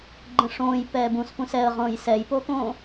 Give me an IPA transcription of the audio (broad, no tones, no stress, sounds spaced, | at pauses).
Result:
ɡ͡ǃ ə̃ ʂ õː j p ɛː b ũ s p ũ s ɛ ə̯ ʁ õː j s ɛ j p oː k õ